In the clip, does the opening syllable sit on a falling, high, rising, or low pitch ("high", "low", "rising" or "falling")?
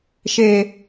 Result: low